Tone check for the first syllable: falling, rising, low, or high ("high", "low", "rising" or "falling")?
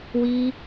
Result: high